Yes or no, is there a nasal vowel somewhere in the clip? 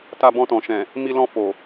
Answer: yes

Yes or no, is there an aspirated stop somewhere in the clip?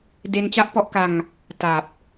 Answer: no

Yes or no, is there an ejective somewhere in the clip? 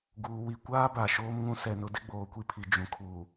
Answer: no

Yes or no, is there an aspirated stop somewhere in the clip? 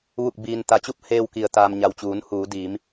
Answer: no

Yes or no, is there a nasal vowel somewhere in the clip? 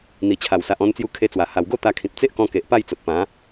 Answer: yes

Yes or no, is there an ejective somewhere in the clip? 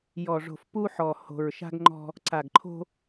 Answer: no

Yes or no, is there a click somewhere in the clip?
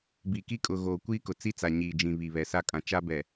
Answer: no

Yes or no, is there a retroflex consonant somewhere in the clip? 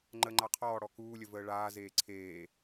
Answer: yes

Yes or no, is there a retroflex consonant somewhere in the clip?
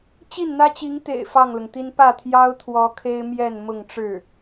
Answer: yes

